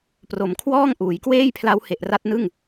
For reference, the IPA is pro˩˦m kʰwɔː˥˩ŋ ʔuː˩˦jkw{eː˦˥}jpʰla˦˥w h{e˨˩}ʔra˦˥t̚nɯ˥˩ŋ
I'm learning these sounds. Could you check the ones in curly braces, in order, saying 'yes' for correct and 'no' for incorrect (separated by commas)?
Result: no, yes